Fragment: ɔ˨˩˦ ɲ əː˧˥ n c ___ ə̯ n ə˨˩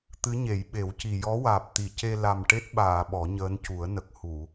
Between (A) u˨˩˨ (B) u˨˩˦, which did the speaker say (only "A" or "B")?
B